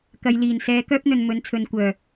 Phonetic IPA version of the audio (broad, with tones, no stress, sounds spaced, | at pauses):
k ɐ˨ j l iː˨˩ n s ɛː˨˧ k œː˥ p̚ n̪ ɵ˨ n m ɵ˨˥ n t͡sʰ ɵ˨˧ n kʷ œː˨˩